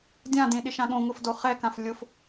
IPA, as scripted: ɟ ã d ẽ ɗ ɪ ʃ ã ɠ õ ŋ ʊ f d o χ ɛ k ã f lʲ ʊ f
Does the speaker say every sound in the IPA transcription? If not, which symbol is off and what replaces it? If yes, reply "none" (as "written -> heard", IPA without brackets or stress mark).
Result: ɟ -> dʲ